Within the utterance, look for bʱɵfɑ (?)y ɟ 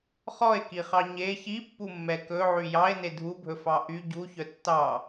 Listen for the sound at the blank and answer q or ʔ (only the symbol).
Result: ʔ